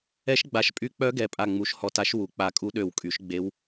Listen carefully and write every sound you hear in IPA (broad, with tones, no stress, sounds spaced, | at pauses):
ɛ˧˥ ʃ ɡ͡b a˧˩ ʃ pʼ y˧˥ k͡p œ˧˥ ɡ ɛ˩˥ pʼ a˧˩ ŋ͡m u˩˥ ʃ h ɔ˧˩ t a˧˥ ʃ w u˩˥ k͡p a˧˩ kʼ u˧˥ ɗ ø˧˩ w kʼ y˩˥ ʃ ɡ͡b e˧˥ w